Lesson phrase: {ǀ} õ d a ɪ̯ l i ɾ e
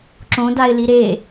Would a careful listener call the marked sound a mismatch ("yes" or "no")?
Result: yes